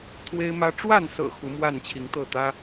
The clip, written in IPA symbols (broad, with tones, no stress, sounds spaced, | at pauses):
t̪ʰ w e˦ ɪ̯ m ä˦ ʈ͡ʂ w a˥˨ n s ɤ̰˨˩ x u˨˦ m w a˥˨ n t͡ɕʰ i˨˦ ŋ t̪ ɤ˥˨ t̪ ä˦